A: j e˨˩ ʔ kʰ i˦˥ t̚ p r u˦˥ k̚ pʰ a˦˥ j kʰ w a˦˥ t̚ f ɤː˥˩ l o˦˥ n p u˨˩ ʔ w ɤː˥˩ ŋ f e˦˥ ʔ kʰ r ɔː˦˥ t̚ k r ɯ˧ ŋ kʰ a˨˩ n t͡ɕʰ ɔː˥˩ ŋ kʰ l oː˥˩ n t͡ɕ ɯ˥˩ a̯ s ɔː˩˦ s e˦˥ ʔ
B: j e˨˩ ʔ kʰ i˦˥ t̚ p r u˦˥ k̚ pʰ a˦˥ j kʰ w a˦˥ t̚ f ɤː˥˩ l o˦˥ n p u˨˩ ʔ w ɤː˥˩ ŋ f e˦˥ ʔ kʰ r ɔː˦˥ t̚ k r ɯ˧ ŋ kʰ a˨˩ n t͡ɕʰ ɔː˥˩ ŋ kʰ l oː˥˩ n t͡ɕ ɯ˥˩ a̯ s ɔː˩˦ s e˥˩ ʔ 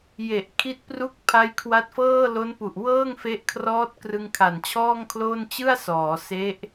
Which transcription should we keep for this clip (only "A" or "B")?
A